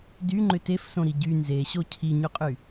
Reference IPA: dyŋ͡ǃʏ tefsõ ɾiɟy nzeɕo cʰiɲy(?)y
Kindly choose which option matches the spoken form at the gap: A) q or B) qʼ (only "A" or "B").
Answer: B